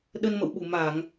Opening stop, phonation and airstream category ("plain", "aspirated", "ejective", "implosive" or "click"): implosive